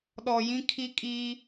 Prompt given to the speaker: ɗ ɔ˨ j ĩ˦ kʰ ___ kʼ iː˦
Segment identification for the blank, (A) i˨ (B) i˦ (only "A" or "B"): B